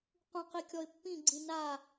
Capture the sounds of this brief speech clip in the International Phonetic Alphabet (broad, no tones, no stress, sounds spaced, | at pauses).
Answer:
q ũ q i kʲ ɔ ɪ̯ pː ĩ ɡ͡ǀ ĩ n a